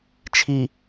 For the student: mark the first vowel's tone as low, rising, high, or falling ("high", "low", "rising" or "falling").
low